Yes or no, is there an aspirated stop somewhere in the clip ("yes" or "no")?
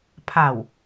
yes